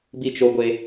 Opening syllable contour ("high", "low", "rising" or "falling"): falling